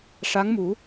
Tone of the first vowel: rising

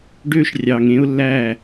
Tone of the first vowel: high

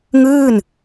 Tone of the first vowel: falling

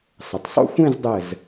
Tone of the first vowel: low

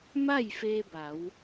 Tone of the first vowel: falling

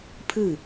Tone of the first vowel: falling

